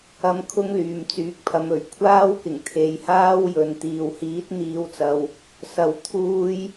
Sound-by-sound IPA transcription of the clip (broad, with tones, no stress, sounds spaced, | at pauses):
ɐ˧ m kʰ ʊ˥ ŋ l yː˨ m t͡s yː˨˥ k̚ pʰ ɐ˨˧ m ɵ˨˩ ɥ kʷʰ aː˥ w k ɪ˨˩ ŋ t̪ʰ e˨˧ j h aː˥ w j ɵ˨ n t̪ iː˨ w h iː˨˥ t̚ n̪ iː˨˧ w t͡s ɐ˨ w | s ɐ˧ w t̪ʰ uː˥ j